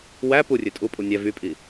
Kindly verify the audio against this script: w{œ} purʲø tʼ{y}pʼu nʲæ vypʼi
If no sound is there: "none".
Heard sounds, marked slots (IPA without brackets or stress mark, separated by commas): æ, u